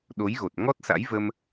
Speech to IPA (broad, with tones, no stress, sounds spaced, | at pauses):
ɗ o˨˦ j ɣ o˨˩ t̚ ŋ ɔ˦˥ t̚ s a̰˧˥ j v ə˧ m